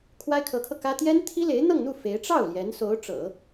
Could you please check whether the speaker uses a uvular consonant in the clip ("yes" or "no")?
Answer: no